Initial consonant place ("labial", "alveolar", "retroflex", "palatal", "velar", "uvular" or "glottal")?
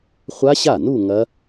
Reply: uvular